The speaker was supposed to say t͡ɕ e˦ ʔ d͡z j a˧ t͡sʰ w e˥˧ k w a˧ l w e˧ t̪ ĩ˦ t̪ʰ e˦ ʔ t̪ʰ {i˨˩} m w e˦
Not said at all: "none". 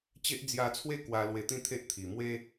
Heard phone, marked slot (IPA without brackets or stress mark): i˨˩